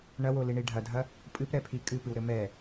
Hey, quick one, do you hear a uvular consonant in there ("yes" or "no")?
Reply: no